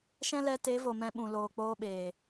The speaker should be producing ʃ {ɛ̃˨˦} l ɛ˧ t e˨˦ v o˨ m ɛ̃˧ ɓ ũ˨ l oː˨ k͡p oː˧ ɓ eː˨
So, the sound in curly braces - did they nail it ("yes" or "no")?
no